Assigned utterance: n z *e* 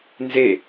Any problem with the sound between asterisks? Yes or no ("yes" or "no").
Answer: no